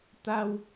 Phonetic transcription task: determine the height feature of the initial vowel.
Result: low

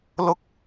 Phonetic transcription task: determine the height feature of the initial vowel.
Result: high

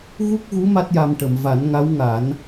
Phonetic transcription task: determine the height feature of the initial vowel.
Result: high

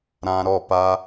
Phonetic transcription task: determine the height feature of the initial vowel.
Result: low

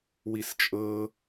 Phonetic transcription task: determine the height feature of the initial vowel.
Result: high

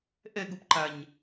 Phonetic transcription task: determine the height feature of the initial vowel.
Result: mid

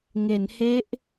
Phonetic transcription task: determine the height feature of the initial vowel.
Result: mid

